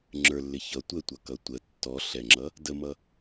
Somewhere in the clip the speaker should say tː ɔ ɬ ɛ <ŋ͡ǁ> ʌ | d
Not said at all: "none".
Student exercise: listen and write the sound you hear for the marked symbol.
ŋ͡ǁ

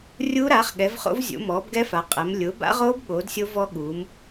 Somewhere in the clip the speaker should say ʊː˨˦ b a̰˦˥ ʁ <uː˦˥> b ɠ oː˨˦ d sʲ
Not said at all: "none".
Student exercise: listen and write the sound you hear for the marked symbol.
oː˦˥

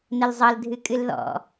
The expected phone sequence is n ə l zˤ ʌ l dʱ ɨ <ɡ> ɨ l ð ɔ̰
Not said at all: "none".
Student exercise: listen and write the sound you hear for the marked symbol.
kʼ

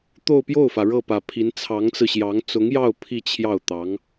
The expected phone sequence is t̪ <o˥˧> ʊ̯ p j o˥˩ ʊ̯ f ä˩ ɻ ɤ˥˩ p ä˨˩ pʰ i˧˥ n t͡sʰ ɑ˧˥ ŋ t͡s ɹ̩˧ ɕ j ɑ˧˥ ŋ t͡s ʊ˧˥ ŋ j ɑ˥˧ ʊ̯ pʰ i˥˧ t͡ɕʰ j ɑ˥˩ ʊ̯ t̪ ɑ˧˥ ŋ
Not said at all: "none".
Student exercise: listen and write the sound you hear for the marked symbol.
o˥˧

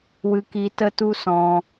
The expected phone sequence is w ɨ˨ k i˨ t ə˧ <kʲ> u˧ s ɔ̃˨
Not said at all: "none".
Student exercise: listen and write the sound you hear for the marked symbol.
t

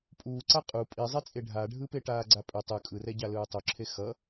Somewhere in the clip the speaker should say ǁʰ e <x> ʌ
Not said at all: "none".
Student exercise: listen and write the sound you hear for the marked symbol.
x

